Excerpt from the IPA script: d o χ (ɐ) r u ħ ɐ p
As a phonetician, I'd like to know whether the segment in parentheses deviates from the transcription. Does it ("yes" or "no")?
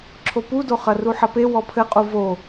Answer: no